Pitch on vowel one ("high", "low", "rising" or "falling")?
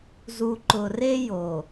low